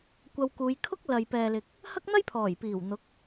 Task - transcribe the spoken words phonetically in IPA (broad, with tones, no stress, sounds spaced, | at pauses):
kʷ ɐ˧ w k uː˨˧ j kʰ ʊ˥ k̚ l ɐ˨ j p ɛː˨ l ɪ˨ k̚ | h ɐ˥ k̚ n̪ ɐ˥ j pʰ ɔː˨˩ j p iː˨˩ w n̪ ʊ˨˥ k̚